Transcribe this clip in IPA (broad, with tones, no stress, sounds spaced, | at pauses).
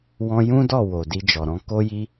w ɔ̃˧ j ũ˦ d ɔ˦˨ w o˨ d i˧ d͡ʒ ɔ˨ ɾ ɔ̃˨˦ k o˧ j i˧